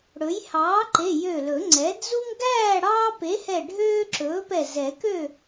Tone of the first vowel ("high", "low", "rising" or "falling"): rising